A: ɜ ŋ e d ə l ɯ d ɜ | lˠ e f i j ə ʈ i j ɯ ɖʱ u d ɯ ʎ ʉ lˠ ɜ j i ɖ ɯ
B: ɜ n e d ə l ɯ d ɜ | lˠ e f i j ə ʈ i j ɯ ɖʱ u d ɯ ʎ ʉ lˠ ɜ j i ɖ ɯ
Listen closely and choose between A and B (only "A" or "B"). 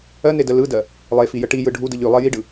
B